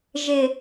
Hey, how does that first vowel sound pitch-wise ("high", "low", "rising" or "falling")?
low